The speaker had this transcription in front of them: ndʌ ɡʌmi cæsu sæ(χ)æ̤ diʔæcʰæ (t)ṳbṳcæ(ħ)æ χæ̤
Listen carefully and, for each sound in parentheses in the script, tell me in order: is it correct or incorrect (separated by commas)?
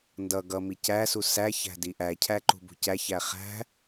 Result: incorrect, incorrect, incorrect